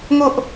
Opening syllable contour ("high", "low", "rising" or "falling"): high